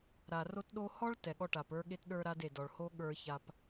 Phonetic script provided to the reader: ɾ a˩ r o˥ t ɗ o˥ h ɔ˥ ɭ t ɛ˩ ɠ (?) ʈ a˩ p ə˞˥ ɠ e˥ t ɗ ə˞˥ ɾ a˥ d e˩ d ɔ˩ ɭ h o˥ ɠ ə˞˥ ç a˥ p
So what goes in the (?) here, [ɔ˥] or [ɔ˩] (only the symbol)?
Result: ɔ˥